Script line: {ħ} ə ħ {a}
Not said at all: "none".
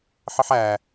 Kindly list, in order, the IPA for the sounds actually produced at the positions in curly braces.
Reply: ħ, æ

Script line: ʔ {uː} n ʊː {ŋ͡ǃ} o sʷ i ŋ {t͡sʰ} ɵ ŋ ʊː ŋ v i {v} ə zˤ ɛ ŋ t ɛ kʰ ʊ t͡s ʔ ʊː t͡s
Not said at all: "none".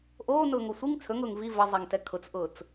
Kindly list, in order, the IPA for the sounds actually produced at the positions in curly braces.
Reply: oː, ŋ, t͡sʰ, v

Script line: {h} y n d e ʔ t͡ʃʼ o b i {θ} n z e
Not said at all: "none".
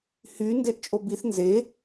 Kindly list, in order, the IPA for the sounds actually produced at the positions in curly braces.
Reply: h, θ

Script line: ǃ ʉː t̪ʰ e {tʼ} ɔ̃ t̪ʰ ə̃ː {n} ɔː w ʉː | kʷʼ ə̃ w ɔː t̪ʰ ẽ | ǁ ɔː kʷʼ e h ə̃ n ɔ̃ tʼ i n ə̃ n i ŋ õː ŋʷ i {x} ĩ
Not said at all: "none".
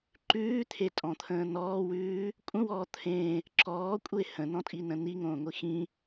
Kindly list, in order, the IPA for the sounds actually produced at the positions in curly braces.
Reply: tʼ, n, x

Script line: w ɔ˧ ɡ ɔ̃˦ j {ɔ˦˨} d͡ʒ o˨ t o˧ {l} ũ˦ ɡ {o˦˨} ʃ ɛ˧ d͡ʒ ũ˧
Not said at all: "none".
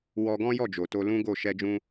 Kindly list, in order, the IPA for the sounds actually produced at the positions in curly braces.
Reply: ɔ˦˨, l, o˦˨

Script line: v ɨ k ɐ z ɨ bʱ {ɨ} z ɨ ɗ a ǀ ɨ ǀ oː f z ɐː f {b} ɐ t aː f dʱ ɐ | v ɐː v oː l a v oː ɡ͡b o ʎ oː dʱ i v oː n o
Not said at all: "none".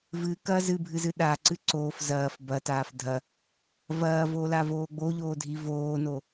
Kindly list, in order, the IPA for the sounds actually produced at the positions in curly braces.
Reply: ɨ, b

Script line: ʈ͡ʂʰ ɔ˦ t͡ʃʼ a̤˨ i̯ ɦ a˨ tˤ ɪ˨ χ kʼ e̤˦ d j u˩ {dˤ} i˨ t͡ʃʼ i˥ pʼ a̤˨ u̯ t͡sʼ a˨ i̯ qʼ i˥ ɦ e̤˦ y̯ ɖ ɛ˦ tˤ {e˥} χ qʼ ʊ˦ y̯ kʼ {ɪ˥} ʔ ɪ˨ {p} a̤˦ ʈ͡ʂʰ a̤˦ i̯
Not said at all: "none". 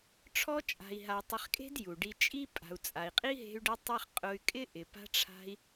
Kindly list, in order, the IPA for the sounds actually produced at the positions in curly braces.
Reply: ɖ, e˥, ɪ˥, p

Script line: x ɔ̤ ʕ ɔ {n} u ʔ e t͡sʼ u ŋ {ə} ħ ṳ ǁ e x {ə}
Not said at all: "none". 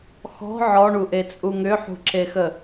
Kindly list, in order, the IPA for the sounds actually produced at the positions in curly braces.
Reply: ɳ, ʏ, ə

